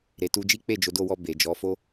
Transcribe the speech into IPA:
ɾ e˨ t u˧ d͡ʒ i˦ k͡p e˦˨ d͡ʒ o˨˦ d o˧ w ɔ˧ b e˨ d͡ʒ ɔ˨˦ f o˦

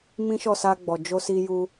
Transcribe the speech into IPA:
m ĩ˦ ʃ ɔ˦˨ s a˧ ɡ͡b ɔ˨ d͡ʒ o˧ s i˧ j u˧

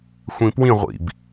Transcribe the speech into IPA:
xʷ ĩ p w ĩ ʁʷ ḭ b

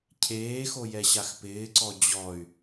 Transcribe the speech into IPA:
cʰ eː x o j ɛ ɕ a x p ɪː ǀ ɔ d͡ʑ ɔ y̯

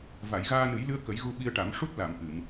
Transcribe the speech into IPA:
v a˨˩˨ j ɣ aː˧ n ɨ˨˩˦ j l ɨ˧ ə̯ k ə˨˩˦ j ɣ u˧ ɓ i˧ ə̯ ʈ a˨˩˦ m ʂ u˦˥ t̚ l a˨˩˨ m ʔ ɨ˨˩˨ m

